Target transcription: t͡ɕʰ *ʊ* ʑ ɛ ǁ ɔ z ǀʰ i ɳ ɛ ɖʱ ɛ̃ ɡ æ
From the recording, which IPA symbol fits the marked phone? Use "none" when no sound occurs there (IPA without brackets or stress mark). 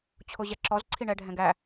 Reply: ʊ